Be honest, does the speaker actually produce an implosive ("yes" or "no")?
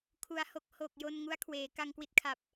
no